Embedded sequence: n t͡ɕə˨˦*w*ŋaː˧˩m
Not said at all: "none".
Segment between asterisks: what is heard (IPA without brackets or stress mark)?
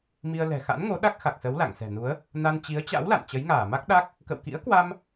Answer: j